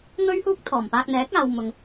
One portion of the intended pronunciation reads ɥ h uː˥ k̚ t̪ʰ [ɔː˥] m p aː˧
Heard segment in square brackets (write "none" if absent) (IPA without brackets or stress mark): ɔː˨˩